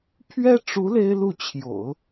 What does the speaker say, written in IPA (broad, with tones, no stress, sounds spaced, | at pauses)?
pʰ ɥ ɛ˥ ʈ͡ʂ u˧˥ l e˥ ɪ̯ l u˥˩ t͡ɕʰ j o̰˨˩˦ ʊ̯